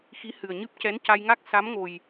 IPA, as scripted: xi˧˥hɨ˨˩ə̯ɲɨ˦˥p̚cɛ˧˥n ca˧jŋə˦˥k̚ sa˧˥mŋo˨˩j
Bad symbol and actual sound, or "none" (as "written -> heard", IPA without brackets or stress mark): ə˦˥ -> a˦˥